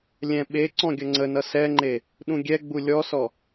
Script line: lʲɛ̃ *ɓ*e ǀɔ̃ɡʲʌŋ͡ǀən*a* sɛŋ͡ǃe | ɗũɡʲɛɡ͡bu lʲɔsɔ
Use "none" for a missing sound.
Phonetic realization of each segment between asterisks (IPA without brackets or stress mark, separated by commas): ɓ, ʌ